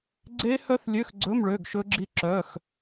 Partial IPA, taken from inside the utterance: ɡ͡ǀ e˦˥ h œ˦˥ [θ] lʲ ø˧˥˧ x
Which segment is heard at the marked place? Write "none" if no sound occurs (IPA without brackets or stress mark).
θ